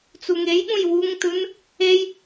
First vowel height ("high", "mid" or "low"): high